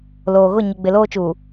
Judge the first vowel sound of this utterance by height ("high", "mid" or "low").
mid